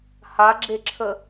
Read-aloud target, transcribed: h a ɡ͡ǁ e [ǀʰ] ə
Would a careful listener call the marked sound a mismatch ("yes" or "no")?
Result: yes